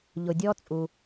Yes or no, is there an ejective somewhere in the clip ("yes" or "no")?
yes